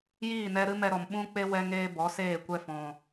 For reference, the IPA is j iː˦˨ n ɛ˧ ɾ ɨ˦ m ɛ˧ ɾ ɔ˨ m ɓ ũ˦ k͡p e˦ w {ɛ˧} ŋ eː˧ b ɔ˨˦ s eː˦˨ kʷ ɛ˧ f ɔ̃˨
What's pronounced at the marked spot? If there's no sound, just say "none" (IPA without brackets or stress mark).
ɛ˧